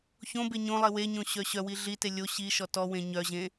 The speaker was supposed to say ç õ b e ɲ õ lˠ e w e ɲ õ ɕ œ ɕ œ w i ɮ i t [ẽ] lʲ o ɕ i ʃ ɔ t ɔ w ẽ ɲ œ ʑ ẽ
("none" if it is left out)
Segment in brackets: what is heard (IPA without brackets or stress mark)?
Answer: e